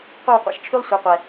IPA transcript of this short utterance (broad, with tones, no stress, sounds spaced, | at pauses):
qʷ e˥˧ w qʷ ḛ˨˦ ʃ t͡ʃʰ y˥ lˠ sʷ ɐ˨˦ qʷ ɛ˨˩